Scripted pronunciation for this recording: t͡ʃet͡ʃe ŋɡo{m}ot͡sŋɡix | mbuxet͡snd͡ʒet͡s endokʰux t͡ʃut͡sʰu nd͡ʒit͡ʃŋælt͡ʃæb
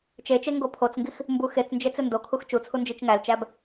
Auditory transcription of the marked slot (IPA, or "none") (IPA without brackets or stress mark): pʰ